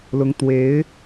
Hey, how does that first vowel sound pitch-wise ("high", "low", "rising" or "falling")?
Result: rising